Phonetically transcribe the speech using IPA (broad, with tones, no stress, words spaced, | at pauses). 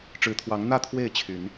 ʈ͡ʂɻ̩˨˦t̪ʰwɑ˨˦ŋ n̪ä˥˨t̪ʰwe˥˨ɪ̯ t͡ɕʰy˨˦n